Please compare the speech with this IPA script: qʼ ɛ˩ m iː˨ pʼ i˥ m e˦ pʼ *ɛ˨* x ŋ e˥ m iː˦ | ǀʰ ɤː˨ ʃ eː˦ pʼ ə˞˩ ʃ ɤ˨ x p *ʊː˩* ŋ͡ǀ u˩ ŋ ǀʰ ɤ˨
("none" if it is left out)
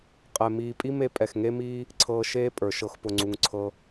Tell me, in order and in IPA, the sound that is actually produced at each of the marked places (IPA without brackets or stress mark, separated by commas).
ɛ˩, ʊ˩